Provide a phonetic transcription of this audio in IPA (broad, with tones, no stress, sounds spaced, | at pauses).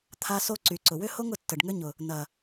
t̪ʰ a˦ s o˦ ǀ y˨ ǀ ʊ˨ w ʏ˦ h o˦ ŋ ʊ˨ tː ə˨ ɖ ŋ ʏ˦ ɲ ʊ˨ | n ɐ˨